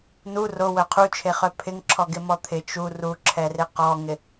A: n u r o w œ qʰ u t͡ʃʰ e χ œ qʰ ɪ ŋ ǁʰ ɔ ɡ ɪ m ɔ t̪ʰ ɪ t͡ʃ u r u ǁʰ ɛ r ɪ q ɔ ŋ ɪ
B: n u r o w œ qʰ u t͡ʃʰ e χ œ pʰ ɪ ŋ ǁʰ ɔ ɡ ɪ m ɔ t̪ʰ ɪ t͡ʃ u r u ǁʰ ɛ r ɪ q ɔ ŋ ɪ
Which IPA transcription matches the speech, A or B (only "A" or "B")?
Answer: B